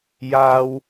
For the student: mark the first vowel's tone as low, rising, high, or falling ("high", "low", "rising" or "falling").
high